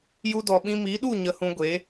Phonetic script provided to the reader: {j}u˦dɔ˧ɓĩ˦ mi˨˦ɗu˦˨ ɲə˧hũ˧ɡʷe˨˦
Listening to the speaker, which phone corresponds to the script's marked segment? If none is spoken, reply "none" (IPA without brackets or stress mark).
j